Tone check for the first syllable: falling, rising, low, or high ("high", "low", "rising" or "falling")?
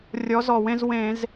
rising